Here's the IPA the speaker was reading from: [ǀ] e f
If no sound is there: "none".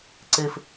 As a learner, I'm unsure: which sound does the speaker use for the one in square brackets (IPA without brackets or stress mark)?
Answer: ǀ